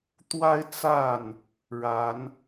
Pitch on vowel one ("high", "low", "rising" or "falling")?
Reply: high